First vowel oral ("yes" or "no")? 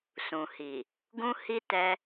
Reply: no